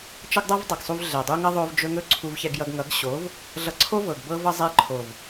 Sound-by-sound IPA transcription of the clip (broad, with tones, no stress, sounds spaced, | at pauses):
t͡ʃ ʌ˦ ɡ dˤ ʌ˦ v dˤ ɤ˨ ɡ sˤ u˧ v ɮ ɛ˨ dˤ u˦ ŋ ʌ˦ ðˤ o˧ v d͡ʒ ɵ˧ ŋ ɵ˦ ǀʰ u˧ v ç ɛ˧ ɡ j ʌ˧ ɡ ŋ ʌ˨˦ ɡ ɕ o˨˦ v | ɮ ʌ˧ ǀʰ o˦ v ɤ˨ ɡ b ɤ˦ v ʌ˦ zˤ ɛ˧ ǃʰ o˨ v